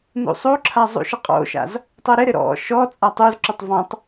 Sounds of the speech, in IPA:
n ṵ sˤ u ǁʰ a zˤ ṵ ʃ ɪ qʼ o̰ ʃ a̰ z | tˤ o ɾ ɪ ɾ ɪ ɾ ɔ̰ ʃ ɔ t͡sʼ a tˤ u z ǁ u tˤ v ɔ̃ tˤ

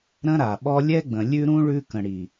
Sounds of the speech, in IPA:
ɾ ə̃˦ ɾ a˨ ɓ ɔ˦ lʲ ɛ˦ ɡ͡b ə̃˨ lʲ ʉ˦ ɾ ũ˦ ɭ ʉ˦ k ə̃˨ ɽ i˨

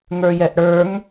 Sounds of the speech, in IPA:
ŋ ə˞ j ɛ ʔ ɽ ə˞ ŋ

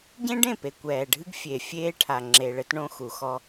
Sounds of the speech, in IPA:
ɟ ẽ˦ ɖ ẽ˦˨ p e˨ kʷ ɛː˨ ɖʱ ɨ˦ ɡ fʲ e˨ fʲ eː˦ ʈʰ a˨ ŋ͡ǁ e˨ ɭ ɘ˦ t ɳ õ˦ x u˨ x ɔ˦

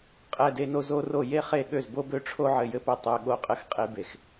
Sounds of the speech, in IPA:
qʼ ɛ˦˨ d e˦ n o˦ z o˦ r o˦˨ j e˦ χ e˦˨ ɠ ø˦˨ z b o˦ b ø˦ ʈ͡ʂʰ o˦ ʕ ɘ˦˨ j ɘ˦ p ɘ˦˨ tˤ ø˦ ɠ o˦˨ qʼ ɘ˦ x qʼ e˦ b e˦˨ x

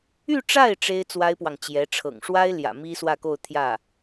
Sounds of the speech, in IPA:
y˥˧ ʈ͡ʂ a˥˩ ɪ̯ ʈ͡ʂ e˥ ɪ̯ t͡s w a˥ ɪ̯ p w ɑ˨ ŋ t͡ɕ j ɛ˧˥ ʈ͡ʂʰ ɤ̰˨˩ ŋ ʂ w a˥ ɪ̯ l j ä̰˨˩ m i˥ s w ä˥˧ k o˥˧ ʊ̯ t̪ʰ j ä˥˩

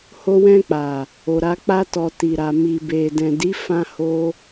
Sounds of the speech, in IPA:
h o˧ w ɛ̃˧ k͡p a˨ | o˨ ɾ a˨˦ k͡p a˦ t ɔ˧ t i˨ ɾ a˨ m i˨ b e˨ d ɛ̃˨ d i˨˦ f ã˧ h o˧

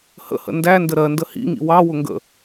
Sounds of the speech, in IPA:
h ə̰ h ə̰ n d æ n d ə ɾ ɜ n d ə h ḭ ŋ ḭ w ɑ w ʊ ŋ ɡ ə̰

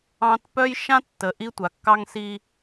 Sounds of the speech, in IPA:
ɑ̃˦ t p œ˦ j ʃ ã˦ tː ə˨ ʔ i˦ tʷ a˨ kː ɑ˦ ŋ s i˦

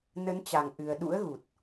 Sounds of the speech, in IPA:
n ə˨˦ n t͡ɕ a˨˩ ŋ ʔ ɨ˨˩ ə̯ ɗ ṵ˧˥ ə̯ ɣ u˨˩ t̚

